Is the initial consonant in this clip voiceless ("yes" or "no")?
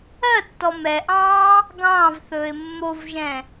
yes